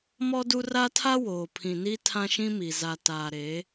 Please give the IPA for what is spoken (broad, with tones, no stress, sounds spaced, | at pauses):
m ɔ˦ d u˦ r a˦ tʰ a˦ w oː˨ pʰ ĩ˨ n i˦ tʰ ã˦ ʃ ĩ˦ m i˨ z a˨ t aː˨ ɾ e˨˦